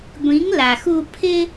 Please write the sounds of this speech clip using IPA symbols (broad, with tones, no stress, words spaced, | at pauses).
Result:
ɡʷĩ˨˦ŋla˨xu˧ pʰɪ˧